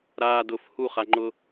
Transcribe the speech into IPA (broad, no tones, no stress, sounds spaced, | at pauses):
ɾ aː d ʊ f h u χ a ŋ͡ǃ ʊ